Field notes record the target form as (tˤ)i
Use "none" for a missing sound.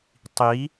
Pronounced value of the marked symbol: tˤ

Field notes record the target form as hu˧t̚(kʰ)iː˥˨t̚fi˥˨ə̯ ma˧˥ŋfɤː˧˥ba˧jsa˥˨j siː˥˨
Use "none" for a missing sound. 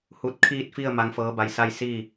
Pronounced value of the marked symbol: kʰ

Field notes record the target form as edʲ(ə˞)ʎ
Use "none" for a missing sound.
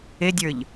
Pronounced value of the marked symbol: ə˞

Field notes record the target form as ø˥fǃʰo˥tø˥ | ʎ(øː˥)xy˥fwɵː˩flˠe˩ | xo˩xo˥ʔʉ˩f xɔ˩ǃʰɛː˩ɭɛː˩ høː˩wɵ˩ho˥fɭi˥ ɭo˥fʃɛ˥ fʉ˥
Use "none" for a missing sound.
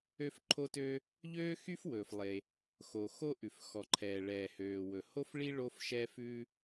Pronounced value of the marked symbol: øː˥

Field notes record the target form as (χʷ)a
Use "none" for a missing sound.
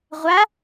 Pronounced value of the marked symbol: ʁʷ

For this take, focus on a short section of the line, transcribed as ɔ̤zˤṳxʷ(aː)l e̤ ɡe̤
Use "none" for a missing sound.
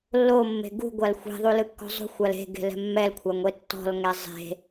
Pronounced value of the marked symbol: a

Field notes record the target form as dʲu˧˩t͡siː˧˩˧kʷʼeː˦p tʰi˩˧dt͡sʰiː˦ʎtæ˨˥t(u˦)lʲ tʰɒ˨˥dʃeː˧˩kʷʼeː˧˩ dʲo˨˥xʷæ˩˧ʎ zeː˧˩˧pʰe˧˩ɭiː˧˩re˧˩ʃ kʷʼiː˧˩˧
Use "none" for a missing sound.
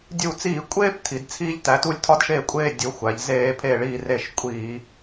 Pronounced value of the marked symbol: u˦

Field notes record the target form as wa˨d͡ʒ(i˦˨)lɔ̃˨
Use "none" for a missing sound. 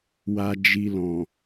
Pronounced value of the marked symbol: i˨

